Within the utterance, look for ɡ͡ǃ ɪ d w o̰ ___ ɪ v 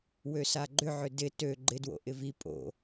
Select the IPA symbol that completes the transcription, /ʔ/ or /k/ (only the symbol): ʔ